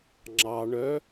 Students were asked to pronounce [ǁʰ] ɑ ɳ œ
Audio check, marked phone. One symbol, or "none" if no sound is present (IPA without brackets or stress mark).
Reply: ŋ͡ǁ